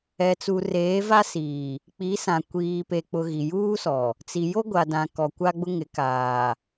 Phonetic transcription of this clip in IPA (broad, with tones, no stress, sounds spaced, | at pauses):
ɛ˨ t͡s u˨ r eː˨˦ v a˦ s iː˨ | k͡p i˨˦ s ã˨ kʷ iː˨ p e˨ k͡p ʊ˨ ɣ i˨ j uː˦ s ɔ˨ | t͡s i˨ j o˦ ɡʷ a˨ d ã˨ k ɔ˨ kʷ a˦ ɡ͡b ʊ˦ ŋ ɪ˨˦ k aː˨